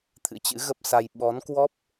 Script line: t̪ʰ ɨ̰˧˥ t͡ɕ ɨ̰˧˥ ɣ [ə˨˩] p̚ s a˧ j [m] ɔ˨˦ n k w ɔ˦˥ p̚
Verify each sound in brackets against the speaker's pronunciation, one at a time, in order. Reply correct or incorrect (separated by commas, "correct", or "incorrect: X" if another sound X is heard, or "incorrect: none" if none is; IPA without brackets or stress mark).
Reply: incorrect: ə˦˥, incorrect: ɓ